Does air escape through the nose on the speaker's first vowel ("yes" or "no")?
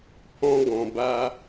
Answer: yes